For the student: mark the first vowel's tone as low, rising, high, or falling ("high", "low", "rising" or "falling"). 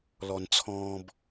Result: low